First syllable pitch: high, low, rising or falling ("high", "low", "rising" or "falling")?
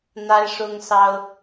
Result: high